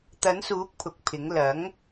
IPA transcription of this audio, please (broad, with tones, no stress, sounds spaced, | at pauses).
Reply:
t̪ ɐ˨˥ n s uː˨˥ k̚ pʰ ʊ˨˥ k̚ pʰ ɪ˨˥ ŋ l ɐ˨˥ ŋ